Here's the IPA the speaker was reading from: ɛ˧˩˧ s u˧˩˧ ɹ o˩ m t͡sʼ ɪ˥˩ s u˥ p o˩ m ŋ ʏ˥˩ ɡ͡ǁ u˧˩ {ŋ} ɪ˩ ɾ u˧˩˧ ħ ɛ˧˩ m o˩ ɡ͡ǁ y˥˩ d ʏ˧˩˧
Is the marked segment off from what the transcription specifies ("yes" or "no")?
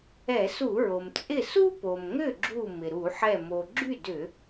yes